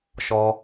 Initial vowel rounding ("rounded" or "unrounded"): rounded